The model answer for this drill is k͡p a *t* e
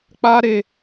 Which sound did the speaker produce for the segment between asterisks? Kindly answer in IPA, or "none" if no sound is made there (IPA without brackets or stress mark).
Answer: ɾ